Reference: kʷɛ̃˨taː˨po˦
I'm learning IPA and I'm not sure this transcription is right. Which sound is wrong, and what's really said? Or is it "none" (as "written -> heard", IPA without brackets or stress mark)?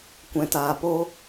none